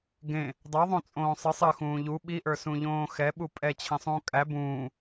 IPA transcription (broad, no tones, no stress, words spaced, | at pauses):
ɡẽ | dˤoðˤõ t͡sʼõːsˤɨ sˤɨ xũːʎu ɓiʔə˞sũʎõː xɛɓu pʼɛ t͡ɕʰẽsˤũːkʼæ bũː